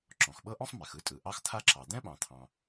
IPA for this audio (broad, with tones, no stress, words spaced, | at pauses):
ǁɔ̃˩xɓɤ˥ʔɔ̃˥sˤ mɛ˩xɯ˥tʼɯ˩ ʔɑ˥xt̪ʰa˥ǁɑ˩ d̪ɛ̃˥ɓɑ̃˩t̪ʰɑ̃˩